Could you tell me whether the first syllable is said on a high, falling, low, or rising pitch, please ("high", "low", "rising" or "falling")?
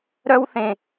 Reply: high